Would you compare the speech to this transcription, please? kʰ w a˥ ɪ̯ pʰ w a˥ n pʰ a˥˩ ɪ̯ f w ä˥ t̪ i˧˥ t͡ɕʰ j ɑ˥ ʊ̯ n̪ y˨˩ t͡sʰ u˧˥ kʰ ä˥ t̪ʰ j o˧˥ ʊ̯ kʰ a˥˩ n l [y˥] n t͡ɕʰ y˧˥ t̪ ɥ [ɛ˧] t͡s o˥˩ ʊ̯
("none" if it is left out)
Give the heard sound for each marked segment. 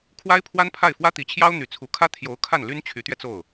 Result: y˥, ɛ˧

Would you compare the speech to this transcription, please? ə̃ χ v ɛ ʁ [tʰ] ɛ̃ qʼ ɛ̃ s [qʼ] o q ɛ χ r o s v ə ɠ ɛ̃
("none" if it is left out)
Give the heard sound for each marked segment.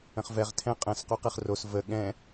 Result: tʰ, q

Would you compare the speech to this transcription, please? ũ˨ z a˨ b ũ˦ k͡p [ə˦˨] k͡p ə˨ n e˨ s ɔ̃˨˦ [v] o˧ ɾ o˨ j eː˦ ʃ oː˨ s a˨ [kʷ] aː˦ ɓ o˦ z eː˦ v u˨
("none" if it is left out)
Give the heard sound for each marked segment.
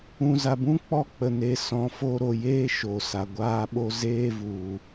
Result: ɔ˦˨, f, ɡʷ

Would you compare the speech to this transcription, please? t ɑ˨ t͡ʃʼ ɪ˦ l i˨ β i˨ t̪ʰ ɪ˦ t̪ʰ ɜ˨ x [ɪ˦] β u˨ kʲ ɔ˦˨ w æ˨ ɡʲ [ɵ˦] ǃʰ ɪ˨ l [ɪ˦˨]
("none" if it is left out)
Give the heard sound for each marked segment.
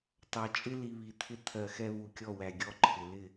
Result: ɛ˦, ɔ˦, ɪ˦˨

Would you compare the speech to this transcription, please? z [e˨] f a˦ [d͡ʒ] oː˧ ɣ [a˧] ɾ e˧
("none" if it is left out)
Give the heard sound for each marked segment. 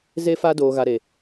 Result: e˦, d, a˧

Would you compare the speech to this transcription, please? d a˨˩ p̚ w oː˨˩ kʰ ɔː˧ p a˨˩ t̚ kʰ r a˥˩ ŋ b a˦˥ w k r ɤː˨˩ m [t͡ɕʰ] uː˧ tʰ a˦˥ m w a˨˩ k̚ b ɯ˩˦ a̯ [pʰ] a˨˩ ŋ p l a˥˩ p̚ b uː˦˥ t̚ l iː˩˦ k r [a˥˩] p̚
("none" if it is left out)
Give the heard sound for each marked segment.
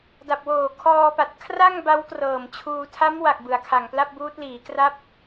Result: t͡ɕʰ, kʰ, a˦˥

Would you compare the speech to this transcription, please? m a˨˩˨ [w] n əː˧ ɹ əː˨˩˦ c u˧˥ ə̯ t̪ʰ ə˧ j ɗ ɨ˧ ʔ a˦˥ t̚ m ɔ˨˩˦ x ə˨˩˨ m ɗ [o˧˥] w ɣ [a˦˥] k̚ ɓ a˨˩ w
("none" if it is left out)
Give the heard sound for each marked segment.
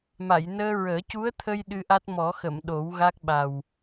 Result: j, o˨˩˦, a˦˥

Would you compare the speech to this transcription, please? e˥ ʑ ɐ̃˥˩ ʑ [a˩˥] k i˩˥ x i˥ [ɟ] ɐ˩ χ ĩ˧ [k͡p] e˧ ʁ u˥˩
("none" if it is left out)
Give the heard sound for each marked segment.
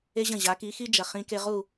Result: a˩˥, d͡ʒ, k

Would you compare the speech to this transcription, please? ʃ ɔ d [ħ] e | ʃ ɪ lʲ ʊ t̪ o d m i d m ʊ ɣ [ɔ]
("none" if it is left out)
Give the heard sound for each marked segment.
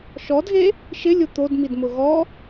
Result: ɣ, ɔ

